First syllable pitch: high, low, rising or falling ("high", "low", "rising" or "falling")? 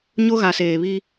high